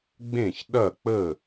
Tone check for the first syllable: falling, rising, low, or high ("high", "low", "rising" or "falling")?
falling